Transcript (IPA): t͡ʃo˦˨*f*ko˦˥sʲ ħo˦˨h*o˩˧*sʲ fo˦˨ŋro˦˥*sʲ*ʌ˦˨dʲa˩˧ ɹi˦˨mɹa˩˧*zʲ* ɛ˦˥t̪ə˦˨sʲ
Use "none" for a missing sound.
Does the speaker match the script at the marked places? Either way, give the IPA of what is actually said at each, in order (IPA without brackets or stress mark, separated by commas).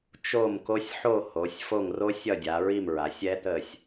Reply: m, o˩˧, sʲ, sʲ